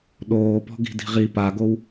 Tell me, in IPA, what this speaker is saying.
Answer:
ɗ oː p ɔ̤ ɡ i̤ d i̤ ʁ i p a ɡ o w

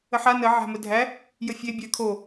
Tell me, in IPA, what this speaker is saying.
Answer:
ə ħ a n ə ʕ æ̤ m ə dʱ æ | j ə fʲ e bʲ æ kʰ o

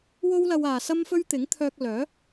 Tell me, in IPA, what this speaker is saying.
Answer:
w o˥ w l ɐ˧ w aː˨ s ɐ˥ m f ɵ˥ ɥ t̪ ɪ˨˥ ŋ t̪ʰ œː˧ k̚ l œː˨˥

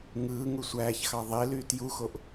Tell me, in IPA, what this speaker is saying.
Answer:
ŋ ɯː ŋ u sʷ æː ç x ɑ ðˤ e l yː t j u x o ʔ

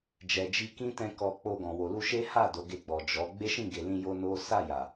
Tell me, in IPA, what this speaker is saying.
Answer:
d͡ʒ ɛ˨ d͡ʒ i˧ k ĩ˦ t ɛ̃˦ k ɔ˧ k͡p o˧ ɡ ɔ̃˨ w o˨ l u˧ ʃ e˦ h a˦˨ d o˨˦ ɡ e˧ ɡ͡b ɔ˨ d͡ʒ ɔ˨˦ ɡ͡b e˦ ʃ ĩ˦˨ ɡ e˨ l ĩ˧ j o˦ n o˦ s a˦˨ j a˨

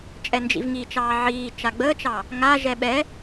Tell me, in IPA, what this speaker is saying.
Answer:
t͡ʃʼ ɛ n d͡ʒ ḭ v ŋ i t͡ʃ ɑː ʕ iː t͡ʃ a ɡ͡b əː t͡ʃ ɑ | ŋ a ʒ ɛ ɓ ɛ

